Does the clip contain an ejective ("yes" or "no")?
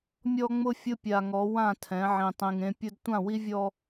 no